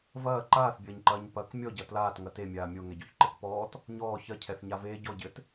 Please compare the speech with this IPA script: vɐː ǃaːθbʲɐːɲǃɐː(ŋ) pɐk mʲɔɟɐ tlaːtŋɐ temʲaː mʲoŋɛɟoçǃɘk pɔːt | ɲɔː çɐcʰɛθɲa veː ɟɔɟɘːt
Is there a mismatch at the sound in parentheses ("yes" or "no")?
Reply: yes